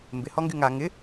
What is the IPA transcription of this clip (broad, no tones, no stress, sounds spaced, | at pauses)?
m b ɪ h ɔ ŋ ɡ y ŋ a ŋ ɪ